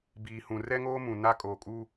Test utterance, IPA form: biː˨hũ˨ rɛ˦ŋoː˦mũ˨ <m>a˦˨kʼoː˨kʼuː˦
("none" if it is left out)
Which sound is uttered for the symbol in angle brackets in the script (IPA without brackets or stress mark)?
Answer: n